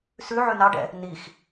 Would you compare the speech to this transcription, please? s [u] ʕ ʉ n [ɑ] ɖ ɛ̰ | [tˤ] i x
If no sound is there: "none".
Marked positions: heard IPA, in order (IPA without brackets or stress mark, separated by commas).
ʉ, ɑ, n